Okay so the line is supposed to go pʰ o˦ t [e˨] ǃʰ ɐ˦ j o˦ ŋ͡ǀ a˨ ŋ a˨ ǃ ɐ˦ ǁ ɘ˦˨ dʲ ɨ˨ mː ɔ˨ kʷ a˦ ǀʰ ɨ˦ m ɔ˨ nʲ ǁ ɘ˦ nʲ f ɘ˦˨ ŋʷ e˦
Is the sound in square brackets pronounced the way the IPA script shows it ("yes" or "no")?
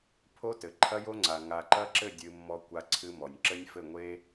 no